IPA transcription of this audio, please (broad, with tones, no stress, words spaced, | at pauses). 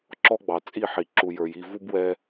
ǁɔ˦ɡ͡bɑ˨ t͡sʼi˦˨ħi˨ ǁu˨jə˞˨ji˦˨ vu˦bwɛ˦